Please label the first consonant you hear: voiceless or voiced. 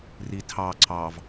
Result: voiced